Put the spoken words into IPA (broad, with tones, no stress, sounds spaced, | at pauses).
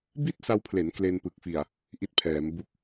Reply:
b i˥˩ t̚ s a˧ w pʰ l e˩˦ n k l e˧ n p ɯ˨˩ k̚ f i˨˩ a̯ | ʔ i˦˥ t̚ pʰ ɛː˩˦ m b u˦˥ k̚